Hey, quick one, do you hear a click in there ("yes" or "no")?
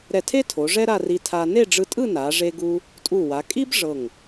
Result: no